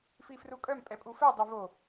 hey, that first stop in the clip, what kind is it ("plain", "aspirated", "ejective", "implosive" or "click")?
ejective